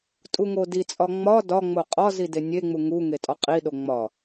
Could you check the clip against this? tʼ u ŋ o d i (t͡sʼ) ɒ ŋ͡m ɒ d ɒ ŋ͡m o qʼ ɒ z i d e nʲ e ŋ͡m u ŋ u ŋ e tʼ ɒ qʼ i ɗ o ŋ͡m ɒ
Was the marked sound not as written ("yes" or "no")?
no